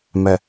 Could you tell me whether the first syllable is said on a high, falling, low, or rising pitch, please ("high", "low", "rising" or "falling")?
low